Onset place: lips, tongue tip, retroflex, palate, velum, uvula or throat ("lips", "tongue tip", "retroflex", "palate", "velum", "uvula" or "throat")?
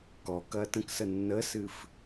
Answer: velum